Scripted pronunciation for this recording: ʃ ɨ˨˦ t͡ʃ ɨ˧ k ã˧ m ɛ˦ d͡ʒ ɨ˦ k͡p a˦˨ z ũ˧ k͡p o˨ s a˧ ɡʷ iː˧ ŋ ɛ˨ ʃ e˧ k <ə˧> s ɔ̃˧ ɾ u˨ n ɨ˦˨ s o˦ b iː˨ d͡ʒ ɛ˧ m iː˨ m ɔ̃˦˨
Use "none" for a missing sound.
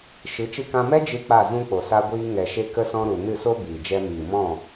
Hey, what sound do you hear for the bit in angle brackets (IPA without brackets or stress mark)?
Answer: ə˧